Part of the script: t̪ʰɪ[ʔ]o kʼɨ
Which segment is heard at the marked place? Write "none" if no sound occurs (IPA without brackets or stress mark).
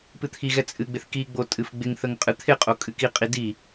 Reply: qʼ